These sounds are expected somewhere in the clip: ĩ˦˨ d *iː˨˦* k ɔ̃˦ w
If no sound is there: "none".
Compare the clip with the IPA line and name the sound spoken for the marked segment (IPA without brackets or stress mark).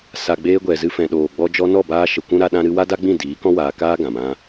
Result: iː˨˦